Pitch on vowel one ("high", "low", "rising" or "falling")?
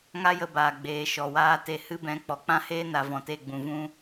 high